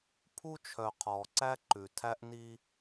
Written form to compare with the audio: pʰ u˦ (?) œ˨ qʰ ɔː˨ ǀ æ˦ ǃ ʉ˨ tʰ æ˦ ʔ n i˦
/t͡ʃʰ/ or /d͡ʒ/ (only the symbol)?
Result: t͡ʃʰ